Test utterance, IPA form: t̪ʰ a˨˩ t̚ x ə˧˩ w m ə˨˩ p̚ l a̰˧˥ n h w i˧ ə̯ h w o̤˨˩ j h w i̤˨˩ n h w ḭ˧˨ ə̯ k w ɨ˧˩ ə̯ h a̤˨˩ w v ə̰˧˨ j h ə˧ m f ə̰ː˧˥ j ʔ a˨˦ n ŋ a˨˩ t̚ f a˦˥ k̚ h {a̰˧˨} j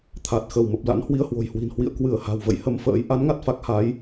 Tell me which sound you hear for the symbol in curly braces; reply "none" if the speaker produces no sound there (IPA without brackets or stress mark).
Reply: a˨˦